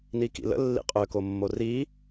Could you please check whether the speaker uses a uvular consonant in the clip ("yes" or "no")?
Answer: yes